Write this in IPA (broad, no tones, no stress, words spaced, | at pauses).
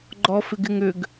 ɡ͡ǃɔfɪɡɪŋʏɡ